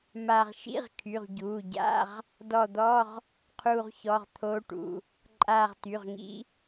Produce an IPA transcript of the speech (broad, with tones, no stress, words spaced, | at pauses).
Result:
ma˧˩ʁ ʃḭ˧˥˧ʁkʰy˩˧˩ʁɟuː˩˧˩ɟa̰˧˥˧ʁ | dɔ˧˩d̪ɔ˧˥˧ʁ | qʰuː˧˩ʁçɔ˩˧˩ʁt̪ʰoː˦˥ʈṵ˩˧˩ | ǃʼaː˧˩ʁty˩˧˩ʁŋḭ˦˥